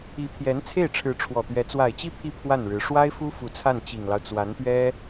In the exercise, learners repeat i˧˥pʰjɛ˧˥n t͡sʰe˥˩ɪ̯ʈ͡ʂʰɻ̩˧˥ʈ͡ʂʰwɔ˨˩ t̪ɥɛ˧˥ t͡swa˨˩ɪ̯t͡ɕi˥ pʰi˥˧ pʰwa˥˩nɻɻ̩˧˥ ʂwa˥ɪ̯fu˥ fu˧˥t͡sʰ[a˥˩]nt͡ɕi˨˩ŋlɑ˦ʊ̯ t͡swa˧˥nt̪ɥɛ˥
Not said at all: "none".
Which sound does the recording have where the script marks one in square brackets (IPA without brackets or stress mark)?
a˥˩